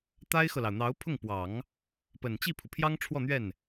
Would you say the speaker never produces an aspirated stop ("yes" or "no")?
no